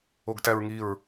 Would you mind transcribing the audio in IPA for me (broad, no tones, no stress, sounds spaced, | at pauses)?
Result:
o ɡ t æ ɹ ŋ i ɹ